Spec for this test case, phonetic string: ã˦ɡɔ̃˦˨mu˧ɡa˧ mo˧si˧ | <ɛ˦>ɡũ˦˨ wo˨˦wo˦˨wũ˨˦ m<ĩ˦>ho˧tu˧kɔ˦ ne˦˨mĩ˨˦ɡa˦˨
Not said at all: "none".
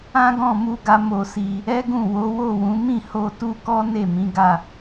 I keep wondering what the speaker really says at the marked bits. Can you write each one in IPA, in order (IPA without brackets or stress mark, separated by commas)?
ɛ˦, ĩ˦˨